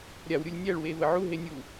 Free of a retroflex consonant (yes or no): no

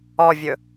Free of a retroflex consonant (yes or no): yes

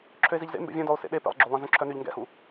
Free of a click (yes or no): no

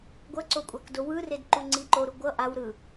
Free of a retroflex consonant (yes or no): yes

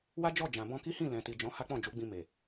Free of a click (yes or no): yes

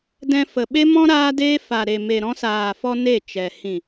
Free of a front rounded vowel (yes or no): yes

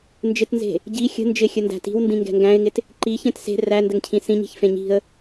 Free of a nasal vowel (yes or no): no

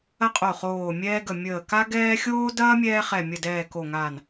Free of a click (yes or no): yes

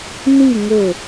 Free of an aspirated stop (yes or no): yes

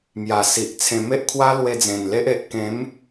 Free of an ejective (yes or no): yes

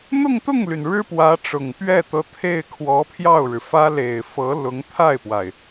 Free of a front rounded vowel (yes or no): no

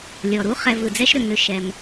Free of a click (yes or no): yes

